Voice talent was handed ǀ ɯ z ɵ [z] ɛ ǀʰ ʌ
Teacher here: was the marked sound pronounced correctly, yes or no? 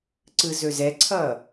yes